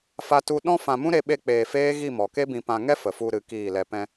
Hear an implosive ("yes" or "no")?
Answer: yes